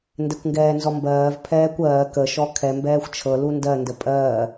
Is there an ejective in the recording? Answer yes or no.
yes